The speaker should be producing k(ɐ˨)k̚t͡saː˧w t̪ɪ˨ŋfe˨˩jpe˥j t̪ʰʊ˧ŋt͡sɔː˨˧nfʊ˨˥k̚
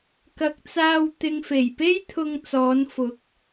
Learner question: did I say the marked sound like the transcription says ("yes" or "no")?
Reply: yes